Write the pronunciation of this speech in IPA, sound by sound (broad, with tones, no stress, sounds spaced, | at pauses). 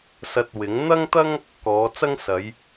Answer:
s ɐ˨ t̚ w ɪ˨˥ ŋ n̪ ɐ˥ ŋ t̪ ɐ˥ ŋ | k ɔː˨˧ t͡s ɐ˥ ŋ s ɐ˨˧ j